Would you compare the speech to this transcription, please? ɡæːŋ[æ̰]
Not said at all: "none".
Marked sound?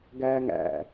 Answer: æ̰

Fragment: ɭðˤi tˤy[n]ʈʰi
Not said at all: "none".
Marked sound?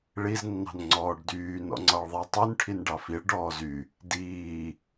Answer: n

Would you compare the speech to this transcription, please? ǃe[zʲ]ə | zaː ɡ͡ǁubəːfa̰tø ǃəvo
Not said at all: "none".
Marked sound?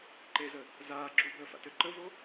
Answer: z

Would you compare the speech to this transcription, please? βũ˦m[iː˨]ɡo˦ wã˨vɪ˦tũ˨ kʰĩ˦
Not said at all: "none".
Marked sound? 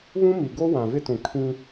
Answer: i˨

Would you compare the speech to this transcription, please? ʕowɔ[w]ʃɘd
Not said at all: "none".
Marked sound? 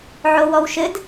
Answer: w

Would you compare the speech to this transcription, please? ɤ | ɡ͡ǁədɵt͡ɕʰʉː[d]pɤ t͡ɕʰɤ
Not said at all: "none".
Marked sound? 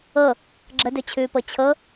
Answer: none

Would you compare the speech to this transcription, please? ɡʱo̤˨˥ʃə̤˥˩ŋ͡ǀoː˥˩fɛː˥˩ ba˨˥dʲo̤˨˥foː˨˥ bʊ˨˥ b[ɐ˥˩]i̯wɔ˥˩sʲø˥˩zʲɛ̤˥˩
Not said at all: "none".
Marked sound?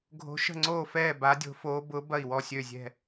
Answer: ɐ˥˩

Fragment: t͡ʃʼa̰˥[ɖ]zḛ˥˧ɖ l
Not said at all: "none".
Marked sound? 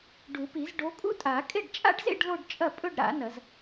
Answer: ɖ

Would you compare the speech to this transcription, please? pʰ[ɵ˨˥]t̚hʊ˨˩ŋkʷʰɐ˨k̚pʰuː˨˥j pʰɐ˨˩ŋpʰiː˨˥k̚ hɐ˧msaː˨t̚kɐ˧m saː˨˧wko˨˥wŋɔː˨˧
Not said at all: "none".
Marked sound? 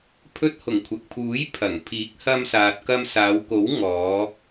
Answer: ɵ˧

